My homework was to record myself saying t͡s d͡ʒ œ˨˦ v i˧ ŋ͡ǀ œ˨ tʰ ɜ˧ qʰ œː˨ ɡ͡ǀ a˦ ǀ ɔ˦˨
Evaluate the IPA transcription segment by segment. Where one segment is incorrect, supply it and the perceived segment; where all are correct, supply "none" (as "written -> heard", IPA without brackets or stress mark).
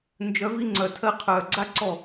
t͡s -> n